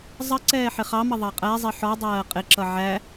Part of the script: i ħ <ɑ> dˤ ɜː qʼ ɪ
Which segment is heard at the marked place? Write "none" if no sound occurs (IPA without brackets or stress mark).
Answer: ɔ